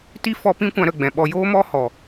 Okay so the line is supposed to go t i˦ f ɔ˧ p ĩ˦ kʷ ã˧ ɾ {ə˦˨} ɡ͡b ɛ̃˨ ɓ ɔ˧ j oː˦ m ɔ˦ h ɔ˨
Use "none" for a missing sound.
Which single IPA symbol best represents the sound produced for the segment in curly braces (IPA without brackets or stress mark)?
ə˦˨